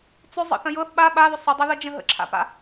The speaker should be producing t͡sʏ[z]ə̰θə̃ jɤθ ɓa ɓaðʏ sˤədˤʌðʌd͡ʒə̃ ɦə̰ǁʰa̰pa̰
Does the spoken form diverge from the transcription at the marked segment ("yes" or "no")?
yes